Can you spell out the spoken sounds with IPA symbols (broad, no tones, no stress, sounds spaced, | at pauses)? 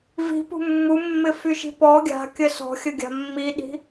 v i̤ p ṳ mː u mː ɪ f y ʃ i̤ p ɔ ɡʲ a̤ kʲ ə s ɔ̤ xʲ ə ɡʲ a̤ mː i ɗ i̤